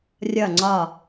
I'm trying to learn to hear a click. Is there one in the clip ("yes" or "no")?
yes